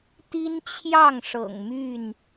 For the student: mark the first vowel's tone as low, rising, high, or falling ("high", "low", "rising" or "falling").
high